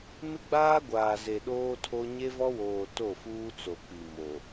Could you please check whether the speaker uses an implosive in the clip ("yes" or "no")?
yes